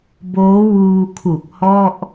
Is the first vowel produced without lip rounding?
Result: no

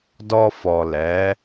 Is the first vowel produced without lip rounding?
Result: no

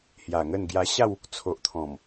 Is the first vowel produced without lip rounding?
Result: yes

